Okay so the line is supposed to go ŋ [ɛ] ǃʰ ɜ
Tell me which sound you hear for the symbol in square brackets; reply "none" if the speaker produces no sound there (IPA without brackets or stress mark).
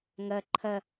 ɜ